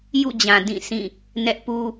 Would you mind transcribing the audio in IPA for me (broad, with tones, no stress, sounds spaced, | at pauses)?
j ṵ˦˨ d͡ʑ ã˨ d ĩ˦˨ sʰ ĩ˦˨ | n ɛ˦ ʔ p u˦